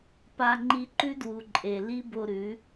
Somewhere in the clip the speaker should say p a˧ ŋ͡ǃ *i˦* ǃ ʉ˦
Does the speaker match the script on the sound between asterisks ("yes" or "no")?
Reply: no